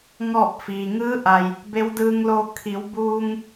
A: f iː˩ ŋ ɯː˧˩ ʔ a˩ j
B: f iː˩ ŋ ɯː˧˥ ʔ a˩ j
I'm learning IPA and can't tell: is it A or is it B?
B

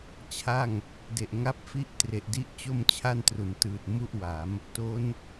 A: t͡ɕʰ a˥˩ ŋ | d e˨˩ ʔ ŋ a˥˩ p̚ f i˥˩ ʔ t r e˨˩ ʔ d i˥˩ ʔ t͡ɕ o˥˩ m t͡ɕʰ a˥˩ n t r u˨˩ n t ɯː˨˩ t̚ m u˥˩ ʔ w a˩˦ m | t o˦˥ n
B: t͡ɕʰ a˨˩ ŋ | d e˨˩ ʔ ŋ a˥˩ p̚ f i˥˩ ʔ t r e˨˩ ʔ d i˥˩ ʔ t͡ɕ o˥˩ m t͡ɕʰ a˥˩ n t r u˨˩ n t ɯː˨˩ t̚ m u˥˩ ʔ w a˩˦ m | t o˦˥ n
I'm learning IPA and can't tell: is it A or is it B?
A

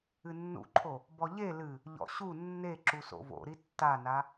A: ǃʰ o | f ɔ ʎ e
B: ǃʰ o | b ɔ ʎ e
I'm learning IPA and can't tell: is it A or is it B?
B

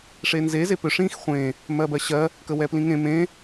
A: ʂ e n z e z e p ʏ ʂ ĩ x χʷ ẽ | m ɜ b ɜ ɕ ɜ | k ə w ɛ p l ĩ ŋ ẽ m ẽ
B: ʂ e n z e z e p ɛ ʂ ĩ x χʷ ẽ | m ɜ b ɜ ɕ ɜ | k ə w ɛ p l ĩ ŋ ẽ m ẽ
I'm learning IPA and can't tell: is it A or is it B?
A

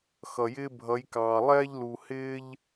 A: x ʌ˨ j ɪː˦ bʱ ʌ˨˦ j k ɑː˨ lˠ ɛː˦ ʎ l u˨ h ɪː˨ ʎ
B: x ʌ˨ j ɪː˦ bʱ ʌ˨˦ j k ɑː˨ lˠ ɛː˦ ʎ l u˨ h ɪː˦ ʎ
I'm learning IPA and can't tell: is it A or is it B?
B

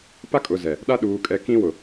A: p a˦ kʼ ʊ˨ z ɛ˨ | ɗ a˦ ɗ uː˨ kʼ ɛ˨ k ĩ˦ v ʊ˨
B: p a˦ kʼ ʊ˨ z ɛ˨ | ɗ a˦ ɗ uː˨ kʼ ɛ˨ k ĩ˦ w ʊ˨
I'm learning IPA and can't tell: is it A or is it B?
B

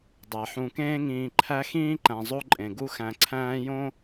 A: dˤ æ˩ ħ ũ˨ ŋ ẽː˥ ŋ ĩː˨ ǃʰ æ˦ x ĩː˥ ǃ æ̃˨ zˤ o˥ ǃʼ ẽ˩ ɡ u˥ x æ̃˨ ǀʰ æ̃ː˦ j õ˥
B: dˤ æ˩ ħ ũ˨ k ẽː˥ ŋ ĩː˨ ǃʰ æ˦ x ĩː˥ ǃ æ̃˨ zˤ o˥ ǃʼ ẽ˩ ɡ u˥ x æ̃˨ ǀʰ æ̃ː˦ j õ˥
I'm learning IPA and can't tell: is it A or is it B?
B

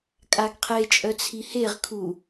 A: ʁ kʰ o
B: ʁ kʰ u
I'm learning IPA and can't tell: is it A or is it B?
B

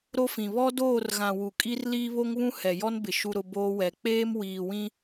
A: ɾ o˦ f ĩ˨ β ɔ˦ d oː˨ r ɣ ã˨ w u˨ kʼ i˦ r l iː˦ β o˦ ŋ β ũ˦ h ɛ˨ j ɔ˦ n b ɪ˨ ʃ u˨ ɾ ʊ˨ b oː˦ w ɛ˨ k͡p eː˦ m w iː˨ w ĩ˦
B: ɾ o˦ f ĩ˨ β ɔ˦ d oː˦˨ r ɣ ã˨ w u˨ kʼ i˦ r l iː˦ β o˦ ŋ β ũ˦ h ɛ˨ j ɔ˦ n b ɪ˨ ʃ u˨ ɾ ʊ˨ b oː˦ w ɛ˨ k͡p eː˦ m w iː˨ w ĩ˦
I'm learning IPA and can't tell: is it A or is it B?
B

